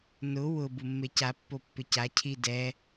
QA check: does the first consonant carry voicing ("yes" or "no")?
yes